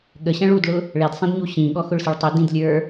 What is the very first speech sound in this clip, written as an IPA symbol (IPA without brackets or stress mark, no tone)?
ɠ